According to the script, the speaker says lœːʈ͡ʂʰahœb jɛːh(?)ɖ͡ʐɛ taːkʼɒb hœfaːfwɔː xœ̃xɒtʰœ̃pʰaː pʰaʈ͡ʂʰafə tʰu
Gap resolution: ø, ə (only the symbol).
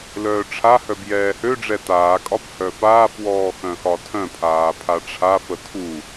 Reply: ø